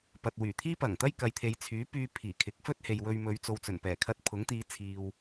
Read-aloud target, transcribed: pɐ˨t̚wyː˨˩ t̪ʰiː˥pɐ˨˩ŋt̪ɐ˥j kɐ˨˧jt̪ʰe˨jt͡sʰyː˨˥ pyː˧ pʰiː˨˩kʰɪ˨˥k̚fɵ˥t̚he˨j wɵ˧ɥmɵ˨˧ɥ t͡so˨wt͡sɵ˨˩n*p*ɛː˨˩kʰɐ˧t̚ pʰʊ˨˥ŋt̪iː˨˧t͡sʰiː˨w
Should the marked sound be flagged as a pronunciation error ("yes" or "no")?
no